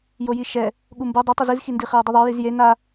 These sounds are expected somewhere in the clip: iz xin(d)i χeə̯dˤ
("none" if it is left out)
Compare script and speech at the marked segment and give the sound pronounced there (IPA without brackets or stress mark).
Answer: d